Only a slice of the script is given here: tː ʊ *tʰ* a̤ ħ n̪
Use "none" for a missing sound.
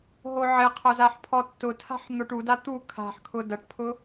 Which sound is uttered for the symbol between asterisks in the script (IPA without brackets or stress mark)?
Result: tʰ